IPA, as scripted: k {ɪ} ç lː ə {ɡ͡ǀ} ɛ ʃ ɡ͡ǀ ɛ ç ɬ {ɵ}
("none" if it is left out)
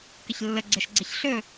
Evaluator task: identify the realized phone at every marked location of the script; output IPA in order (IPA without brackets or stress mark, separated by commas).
ɪ, ɡ͡ǀ, ɵ